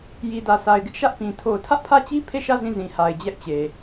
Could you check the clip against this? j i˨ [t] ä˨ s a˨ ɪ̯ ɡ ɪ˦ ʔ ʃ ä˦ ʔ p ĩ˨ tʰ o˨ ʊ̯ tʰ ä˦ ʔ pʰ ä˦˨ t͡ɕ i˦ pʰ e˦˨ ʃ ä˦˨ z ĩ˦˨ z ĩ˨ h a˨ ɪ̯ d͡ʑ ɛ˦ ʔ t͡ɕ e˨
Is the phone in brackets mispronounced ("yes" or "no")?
yes